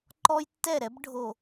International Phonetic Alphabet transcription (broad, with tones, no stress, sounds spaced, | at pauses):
ǃ ɔ˦ j tː ɛ˦˨ ɾ ɛ˦ b ɖʱ o˨